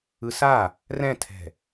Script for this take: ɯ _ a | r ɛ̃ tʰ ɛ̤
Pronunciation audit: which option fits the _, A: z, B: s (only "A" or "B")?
B